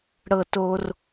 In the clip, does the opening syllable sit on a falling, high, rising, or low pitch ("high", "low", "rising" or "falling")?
high